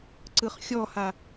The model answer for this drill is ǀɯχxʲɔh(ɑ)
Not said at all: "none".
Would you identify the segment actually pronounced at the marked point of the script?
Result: a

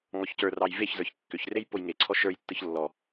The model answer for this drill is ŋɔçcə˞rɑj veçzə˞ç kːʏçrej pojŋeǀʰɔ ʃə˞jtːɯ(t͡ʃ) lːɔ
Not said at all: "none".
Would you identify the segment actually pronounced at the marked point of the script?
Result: ç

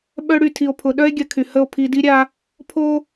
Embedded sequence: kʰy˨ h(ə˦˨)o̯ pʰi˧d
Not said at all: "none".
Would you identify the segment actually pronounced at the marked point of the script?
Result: ə˦˨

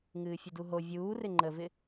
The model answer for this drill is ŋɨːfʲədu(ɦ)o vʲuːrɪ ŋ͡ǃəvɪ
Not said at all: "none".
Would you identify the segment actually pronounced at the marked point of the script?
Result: ɦ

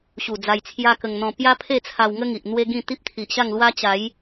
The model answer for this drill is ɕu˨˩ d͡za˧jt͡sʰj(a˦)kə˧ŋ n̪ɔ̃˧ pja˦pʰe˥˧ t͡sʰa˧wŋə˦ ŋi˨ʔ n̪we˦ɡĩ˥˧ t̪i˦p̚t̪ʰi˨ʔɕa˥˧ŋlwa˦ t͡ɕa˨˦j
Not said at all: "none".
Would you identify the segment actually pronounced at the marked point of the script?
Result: a˦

